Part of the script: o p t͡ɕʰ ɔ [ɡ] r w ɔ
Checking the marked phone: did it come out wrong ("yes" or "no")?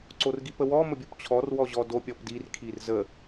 yes